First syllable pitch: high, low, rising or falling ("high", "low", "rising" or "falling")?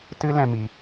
high